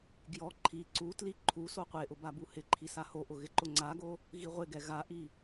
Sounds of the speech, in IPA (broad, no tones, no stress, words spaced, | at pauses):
ɡjɔ ǃʰi ǀutli ǃʰu soqʷeʔʊ babuhɪǃʰi sahoʔʊ ɣɪǃʊŋ͡ǀaɡo | ɣiʁʷɪɡɛ ɣaʔi